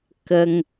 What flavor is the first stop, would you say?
plain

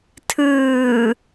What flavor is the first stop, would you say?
aspirated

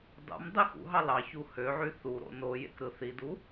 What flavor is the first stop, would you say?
plain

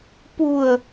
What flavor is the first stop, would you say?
plain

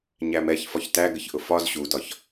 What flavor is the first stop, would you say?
plain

